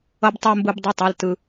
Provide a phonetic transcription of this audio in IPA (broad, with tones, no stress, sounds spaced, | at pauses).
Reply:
ʌ˧ b tˤ o˧ m b ɯ˧ b dˤ u˩˧˩ tˤ a˩˧˩ l t ɯ˧